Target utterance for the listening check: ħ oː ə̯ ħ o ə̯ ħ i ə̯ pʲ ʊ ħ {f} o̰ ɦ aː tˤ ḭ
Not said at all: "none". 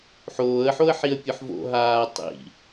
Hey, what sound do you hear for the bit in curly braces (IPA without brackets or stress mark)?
v